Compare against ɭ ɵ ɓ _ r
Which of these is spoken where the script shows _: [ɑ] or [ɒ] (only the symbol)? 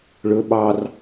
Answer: ɑ